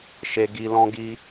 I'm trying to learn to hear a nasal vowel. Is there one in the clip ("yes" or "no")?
yes